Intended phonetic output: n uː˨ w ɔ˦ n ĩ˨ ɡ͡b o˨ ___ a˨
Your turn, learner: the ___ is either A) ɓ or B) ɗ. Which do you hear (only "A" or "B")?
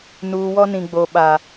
A